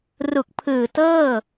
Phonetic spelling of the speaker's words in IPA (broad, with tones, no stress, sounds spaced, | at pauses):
r u˨˩ k̚ pʰ ɯː˨˩ t ɤː˥˩